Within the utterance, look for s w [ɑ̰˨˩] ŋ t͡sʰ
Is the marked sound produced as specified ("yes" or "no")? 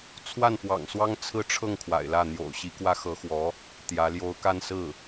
no